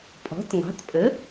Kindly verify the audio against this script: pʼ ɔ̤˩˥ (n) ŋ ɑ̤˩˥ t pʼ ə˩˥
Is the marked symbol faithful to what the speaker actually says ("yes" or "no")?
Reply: no